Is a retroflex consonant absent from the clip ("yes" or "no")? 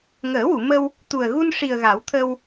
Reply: no